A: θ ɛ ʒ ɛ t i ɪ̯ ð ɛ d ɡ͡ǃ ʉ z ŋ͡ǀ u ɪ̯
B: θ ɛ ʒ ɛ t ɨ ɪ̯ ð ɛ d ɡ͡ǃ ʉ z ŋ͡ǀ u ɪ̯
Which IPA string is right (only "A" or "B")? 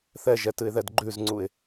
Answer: B